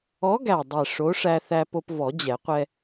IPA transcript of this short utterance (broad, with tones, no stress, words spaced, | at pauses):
ɔ˨˥ɡæ˨˩dˤɛ˨˩ ʂo˨˥ʂæ˧θæ˧ po˧pvɔ˨˩˦d͡ʑɛ˨˩˦qʷɛ˧